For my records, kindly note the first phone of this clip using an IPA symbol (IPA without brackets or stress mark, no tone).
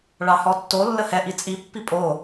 ɭ